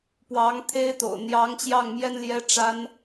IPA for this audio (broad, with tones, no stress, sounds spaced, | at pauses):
p w ɑ˧˥ ŋ t̪ʰ e˥ ɪ̯ t̪ o̰˨˩ ʊ̯ n̪ j ɑ˧˥ ŋ t͡ɕ j ɑ˥˩ ŋ m j ɛ˥ n l j ɛ˥ ʈ͡ʂ a˥ n